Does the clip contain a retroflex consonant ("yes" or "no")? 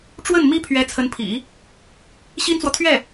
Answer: yes